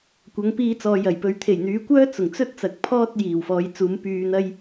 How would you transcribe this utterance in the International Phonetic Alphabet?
kʷ ɐ˨˧ ŋ p iː˧ t͡s ɔː˨ j ɐ˨˩ j p ɵ˧ ɥ t̪ʰ e˨˩ j n̪ yː˨˧ kʷ œː˥ t͡s ʊ˨˩ ŋ t͡s ɵ˥ t̚ t͡s ɐ˨ k̚ pʰ ɔː˥ t̚ j iː˨˩ w f ɔː˨˧ j t͡s uː˨˧ m p yː˧ n̪ ɐ˥ j

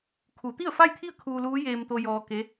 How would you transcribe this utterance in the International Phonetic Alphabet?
kʰ u˩˧ t̪ i˥˨ ə̯ f a˥˨ j t̪ʰ i˥˨ ə̯ kʰ uː˧ l uː˧˥ j eː˧ m t̪ o˧ j ɔː˧ k e˧˥

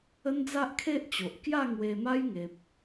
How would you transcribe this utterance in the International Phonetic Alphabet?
ə˦ n d͡z a˦ ʔ kʰ e˦ ʔ t͡ɕ o˨ ʔ k j a˥˧ ŋ w e˧ m a˦ j ŋ e˨ p̚

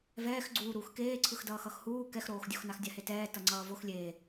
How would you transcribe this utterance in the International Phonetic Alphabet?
v ɛː x ɡ͡ǀ uː ɾ uː x k eː ǀʰ ɯ x d ʌː x ʌ x h uː k ɛ x ɾ oː x dʲ o x n a x dʲ a h e t ɛː t ʌ ŋ͡ǀ ʌː v o x lʲ e

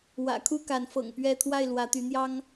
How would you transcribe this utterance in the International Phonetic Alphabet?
w ä̰˨˩ kʰ u˥˨ k a˨˦ n f ɤ̰˨˩ ŋ p ɥ ɛ˥˨ t̪ʰ w a˥˨ ɪ̯ l w ä˨˦ t̪ y˨˦ n̪ j ɑ˦ ŋ

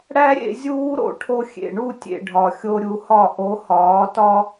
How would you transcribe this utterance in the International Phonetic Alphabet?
ɽ æ˦ ɾʲ ḛ˧ zʲ uː˦ ɾ o̰˧ ʈʰ o˧ xʲ ḛ˨ ɳ u˦˨ tʲ ḛ˨ ɖʱ ɒ˨ xʲ o˧ ɾʲ u˨˦ h ɒ˦˨ ʔ o˨˦ h ɒː˨˦ t ɒ˦

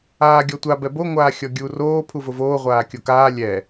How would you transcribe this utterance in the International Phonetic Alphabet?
aː ɡʲ ɔ tʷ a b ɛ b o ŋʷ aː xʲ ɔ ɡʲ u r oː pʰ u v ʊ v oː ʁʷ aː kʲ o k aː lʲ ɛ

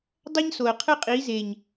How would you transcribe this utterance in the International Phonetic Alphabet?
dˤ a˦ ɲ s o˨ ə̯ qʰ ɯ˦ qʼ iː˨˦ z e˨ ɲ

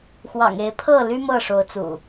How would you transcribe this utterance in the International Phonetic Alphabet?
x w ɑ̰˨˩ ŋ e˨˦ ɪ̯ pʰ ɤ˥˨ l y˦ m ɤ˥˨ ʂ o˨˦ ʊ̯ t͡s ṵ˨˩

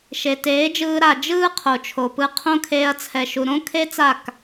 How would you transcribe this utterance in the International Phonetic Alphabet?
ʃ e˨ t eː˨˦ d͡ʒ ɯː˧ ɾ a˨ d͡ʒ ɯː˦ qʰ o˨ t͡ʃʰ o˨ p ɯ˧ qʰ õ˦ kʰ eː˦ ɐ̯ t͡sʰ ɛ˧ ʃ u˧ ɾ õ˦ kʰ e˦ t͡s a˦˨ k

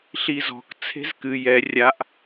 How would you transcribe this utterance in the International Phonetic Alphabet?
ɬ i z ɔ̤ k t͡sʰ e̤ z k ɨ j ɛ rʲ a ʔ

